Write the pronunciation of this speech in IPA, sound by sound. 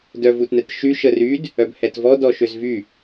d œ v u t n ɛ t ʃ y ʃ ə r y d | œ b h ɛ t v ɔ d ɔ ʃ ø z v y

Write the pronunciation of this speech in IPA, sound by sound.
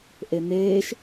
ʔ e n̪ eː ʃ

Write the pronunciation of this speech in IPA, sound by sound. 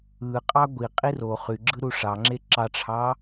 ɯ qʼ ɑ ɡʷ i qʼ i r o χ y ɡ͡ǁ ɯ ɾ u ʂ ɑ ŋ͡ǁ e ǁ ɑ ʈ͡ʂʰ ɑ

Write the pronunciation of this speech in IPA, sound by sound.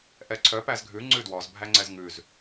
ʔ ɛ ǀʰ œ p æ z ɡʱ ʉ ŋ͡ǀ ʉ d w ɔ z bʱ æ ŋ͡ǀ ɛ z ŋ ʉ z

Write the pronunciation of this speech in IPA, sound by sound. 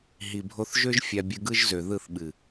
ɦ i˨ bʱ o˧ θ ʒ ø˦ ʒ fʲ a˧ bʲ ɯ˧ ɡ ɯ˦ ʒ z ø˨ ð ɯ˦˨ θ ɓ ɨ˨

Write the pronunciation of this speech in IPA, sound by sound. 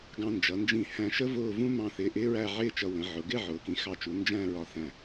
ɡ ɑ̃˧ n d͡ʒ ʌ˩˧ n d͡ʒ ĩ˧˩ h æ̃˧ ʃ ə˥ v ʊː˥˧ v ũ˥ m ɑ̃˥˧ θ ɪː˧ ʔ ɪː˥ ɹ æ˥˧ ʕ ɪː˥˧ t͡ʃ ʌ˧ w ə̃˩˧ ʕ ʊ˩˧ ɡ ɪ˥˧ ʕ ʊː˩˧ k ĩ˩˧ x ɑ˧˩ t͡ʃ u˩˧ n d͡ʒ æ̃˥˧ ɹ ɒ˧ θ æ̃˧˩

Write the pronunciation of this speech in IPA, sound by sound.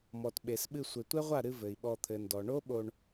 m ɔ˨ t ɓ e˨ s ɓ ɨ˧ sʷ e˨ tʷ ɛ˦ ʁʷ a˦˨ ɾ ɨ˧ v ɘ˨ i̯ ɓ ɔ˧ t̪ʰ ɘ˨ n d ɔ˨ ɳ o˦ ɓ o˧ ɳ

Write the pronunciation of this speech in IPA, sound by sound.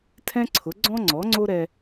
tʰ ɛ̃˥ ǀʰ ʊ˩˥ ɡ͡ǀ ɔ̃˥ ŋ͡ǀ ɔ˩˥ ŋ͡ǀ o˥ ɾ ɛ˧

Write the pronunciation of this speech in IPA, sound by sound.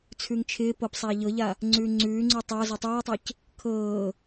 t͡sʰ ʉ ŋ t͡ʃʰ ɪː p ɤ p sˤ aː ʎ ɤ ʎ a | ŋ͡ǀ ʉː ŋ͡ǀ ʉː ŋ͡ǀ ʉ tˤ a z ɛ tˤ ɤː ɐ̯ tˤ ɪː c | kʰ ɤː

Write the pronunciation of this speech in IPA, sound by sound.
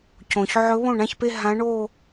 c õ˩ ç ʕ ɵ˧˥ β õ˥˩ ɳ ã˥˧ ç p e˥˧ ɦ ã˧˥ ɳ o˥˧

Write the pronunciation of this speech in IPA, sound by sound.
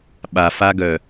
ɓ a f a ɡ œ

